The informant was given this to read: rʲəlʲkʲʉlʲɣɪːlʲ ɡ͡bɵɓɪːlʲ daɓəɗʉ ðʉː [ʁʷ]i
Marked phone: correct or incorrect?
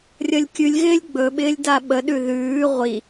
correct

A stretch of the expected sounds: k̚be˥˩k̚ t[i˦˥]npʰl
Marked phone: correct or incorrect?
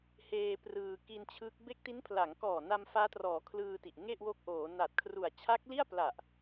correct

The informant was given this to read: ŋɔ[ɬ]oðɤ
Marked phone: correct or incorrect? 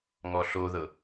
correct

